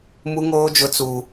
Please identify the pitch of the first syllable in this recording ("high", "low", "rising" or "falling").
high